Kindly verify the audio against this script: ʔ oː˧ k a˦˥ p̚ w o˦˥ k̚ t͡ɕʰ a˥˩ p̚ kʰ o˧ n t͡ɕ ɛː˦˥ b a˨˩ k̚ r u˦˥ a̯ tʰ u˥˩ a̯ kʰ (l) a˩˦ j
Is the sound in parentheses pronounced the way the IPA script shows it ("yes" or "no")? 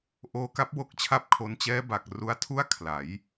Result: yes